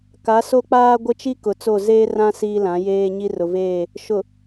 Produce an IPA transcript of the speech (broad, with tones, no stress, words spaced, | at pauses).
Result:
ka˨˦ so˦k͡paː˦ ɡʷɪ˦t͡ʃi˦ kʊ˨t͡so˦˨ zeː˦rã˦ siː˦lã˨˦jeː˦ɲi˦ rʊ˨veː˦˨ | ʃʊ˨